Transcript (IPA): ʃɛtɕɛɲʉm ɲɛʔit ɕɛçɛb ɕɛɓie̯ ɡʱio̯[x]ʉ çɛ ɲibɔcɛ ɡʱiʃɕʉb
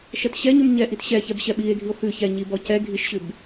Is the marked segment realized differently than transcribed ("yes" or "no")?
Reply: no